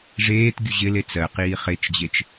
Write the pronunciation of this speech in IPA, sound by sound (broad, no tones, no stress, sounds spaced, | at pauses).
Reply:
ʐ eː t ɡʲ u ʑ ɪ l e t͡s ɜ q iː χ e t͡ʃ d͡ʑ e t͡ʃ